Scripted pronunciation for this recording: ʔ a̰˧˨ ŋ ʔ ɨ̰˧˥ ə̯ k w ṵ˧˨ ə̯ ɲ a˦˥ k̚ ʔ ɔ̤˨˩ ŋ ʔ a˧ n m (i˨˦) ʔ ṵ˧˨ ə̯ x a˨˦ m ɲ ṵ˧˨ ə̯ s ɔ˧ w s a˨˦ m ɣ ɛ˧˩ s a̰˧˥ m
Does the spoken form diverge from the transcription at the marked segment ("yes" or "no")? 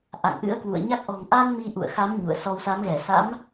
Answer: yes